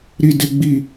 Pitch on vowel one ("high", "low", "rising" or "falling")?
high